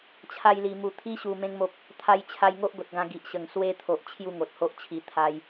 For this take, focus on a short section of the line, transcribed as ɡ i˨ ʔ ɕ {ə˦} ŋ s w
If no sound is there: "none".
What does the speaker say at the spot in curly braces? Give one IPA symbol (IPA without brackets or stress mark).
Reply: ə˨˩